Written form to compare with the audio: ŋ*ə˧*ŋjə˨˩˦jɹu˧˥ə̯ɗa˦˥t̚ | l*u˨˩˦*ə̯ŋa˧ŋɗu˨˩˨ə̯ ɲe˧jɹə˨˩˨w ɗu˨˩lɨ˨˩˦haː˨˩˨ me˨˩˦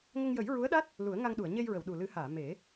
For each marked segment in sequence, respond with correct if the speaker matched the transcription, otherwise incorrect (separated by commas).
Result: correct, correct